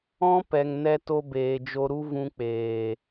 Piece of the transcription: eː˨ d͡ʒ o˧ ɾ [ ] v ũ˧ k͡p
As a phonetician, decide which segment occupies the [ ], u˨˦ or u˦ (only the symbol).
u˦